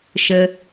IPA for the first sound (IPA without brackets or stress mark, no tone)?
ʃ